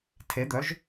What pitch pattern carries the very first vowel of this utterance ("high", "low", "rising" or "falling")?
rising